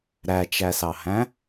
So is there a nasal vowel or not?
yes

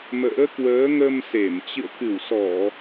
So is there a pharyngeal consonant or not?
no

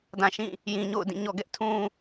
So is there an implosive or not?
no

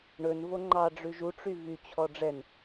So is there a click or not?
yes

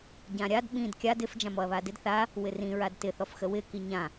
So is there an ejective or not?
no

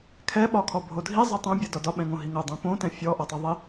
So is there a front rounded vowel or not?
no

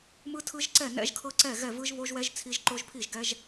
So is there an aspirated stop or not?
yes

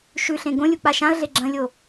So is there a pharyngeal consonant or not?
no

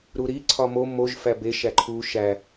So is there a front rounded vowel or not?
no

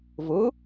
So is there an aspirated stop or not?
no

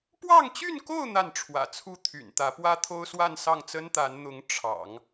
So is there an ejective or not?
no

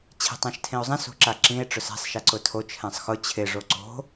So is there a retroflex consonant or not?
yes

